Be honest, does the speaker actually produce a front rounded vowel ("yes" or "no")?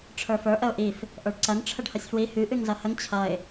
yes